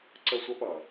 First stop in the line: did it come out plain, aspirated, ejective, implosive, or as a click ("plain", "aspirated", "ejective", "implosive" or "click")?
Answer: click